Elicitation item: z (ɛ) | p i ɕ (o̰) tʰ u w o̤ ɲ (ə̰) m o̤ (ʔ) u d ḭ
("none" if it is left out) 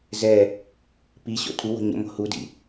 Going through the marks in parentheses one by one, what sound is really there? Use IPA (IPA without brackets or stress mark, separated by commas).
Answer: ɛ, o̰, ə̰, h